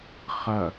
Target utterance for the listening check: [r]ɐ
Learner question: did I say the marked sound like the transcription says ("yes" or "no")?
no